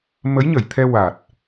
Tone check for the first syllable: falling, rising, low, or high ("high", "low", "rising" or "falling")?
rising